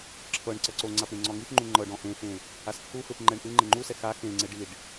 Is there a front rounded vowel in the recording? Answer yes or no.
no